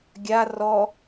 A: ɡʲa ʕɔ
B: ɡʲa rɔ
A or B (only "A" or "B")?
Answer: B